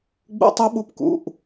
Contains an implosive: yes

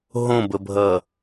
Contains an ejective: no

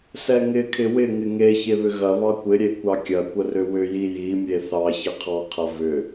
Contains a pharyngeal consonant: no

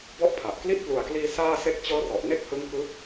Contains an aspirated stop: yes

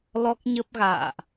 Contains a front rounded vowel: no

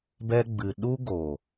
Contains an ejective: no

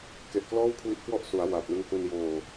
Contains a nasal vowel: no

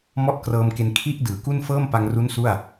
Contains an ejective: no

